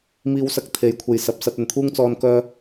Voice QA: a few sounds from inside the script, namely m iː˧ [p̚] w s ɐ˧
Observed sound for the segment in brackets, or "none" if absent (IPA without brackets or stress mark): none